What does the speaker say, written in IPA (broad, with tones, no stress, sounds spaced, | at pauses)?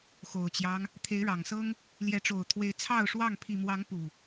x o˨˩ ʊ̯ t͡ɕ j ɑ˦ ŋ | t̪ʰ e˨˦ ɪ̯ ɻ ɑ˨˩ ŋ s ɤ˦ ŋ | l j ɛ˨˦ ʈ͡ʂ o˨˩ ʊ̯ t̪ʰ w e˨˦ ɪ̯ t͡sʰ ɑ˥˨ ʊ̯ ʂ w ɑ˥˨ ŋ pʰ i˨˩ m w ɑ˨˦ ŋ p u˨˩